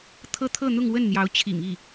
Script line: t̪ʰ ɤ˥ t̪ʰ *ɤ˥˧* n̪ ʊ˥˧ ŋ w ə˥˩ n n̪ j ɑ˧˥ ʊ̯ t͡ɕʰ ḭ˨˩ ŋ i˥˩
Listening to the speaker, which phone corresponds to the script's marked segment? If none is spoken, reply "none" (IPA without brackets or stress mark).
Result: ɤ˥˧